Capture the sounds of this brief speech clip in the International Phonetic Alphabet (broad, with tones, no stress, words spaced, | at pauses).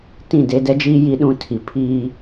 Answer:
tĩ˦˨de˦ dɛ˦d͡ʒiː˦ ji˦ɗũ˦tʰi˨ pʰiː˦